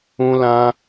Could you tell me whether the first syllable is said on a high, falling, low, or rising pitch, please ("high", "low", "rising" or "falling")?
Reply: high